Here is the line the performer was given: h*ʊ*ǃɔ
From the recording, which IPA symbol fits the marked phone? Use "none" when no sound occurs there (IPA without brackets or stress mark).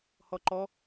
ɔ